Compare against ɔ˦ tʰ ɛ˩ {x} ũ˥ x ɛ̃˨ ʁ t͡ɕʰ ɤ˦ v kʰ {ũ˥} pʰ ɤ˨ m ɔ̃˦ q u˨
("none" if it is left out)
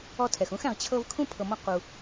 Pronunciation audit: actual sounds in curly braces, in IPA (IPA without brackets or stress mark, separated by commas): x, ũ˥